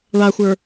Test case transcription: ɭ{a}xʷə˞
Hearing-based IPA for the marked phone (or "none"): a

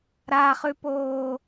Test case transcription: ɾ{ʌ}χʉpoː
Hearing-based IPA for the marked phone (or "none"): a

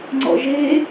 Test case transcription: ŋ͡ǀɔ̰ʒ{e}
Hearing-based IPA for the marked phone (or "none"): e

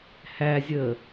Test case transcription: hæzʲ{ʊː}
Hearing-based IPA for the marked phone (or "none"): əː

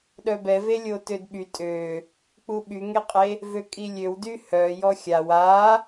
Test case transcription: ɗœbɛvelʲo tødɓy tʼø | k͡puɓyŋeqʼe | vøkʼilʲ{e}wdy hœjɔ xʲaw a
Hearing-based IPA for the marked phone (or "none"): ø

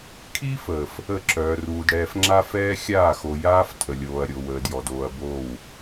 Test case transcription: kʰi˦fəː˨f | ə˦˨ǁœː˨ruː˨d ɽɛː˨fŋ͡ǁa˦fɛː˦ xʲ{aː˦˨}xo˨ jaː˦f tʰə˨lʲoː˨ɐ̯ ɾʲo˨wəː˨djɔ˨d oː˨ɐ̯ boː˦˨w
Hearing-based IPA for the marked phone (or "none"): aː˦˨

